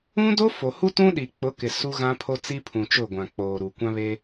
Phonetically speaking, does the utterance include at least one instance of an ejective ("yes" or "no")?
no